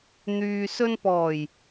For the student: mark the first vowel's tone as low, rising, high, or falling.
low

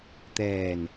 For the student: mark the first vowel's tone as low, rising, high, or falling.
low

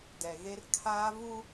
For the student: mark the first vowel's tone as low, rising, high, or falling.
low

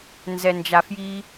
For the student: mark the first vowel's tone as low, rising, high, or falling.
low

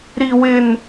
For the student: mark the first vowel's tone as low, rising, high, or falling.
high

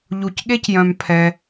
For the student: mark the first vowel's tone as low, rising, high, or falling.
low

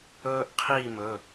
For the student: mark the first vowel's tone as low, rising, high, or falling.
high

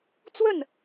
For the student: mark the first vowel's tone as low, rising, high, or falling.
falling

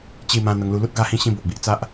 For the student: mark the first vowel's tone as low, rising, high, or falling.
falling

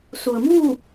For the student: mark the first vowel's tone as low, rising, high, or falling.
low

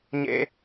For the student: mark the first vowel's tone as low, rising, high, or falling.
high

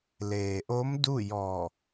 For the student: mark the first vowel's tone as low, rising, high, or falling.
low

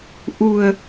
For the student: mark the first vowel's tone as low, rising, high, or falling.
low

